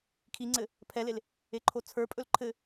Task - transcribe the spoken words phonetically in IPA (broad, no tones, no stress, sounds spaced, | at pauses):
kʰ i ŋ͡ǀ ɘ | pʰ ɛ l e l | e ǃʰ o t͡sʰ ə˞ pʼ ɵ l ǃʰ ɘ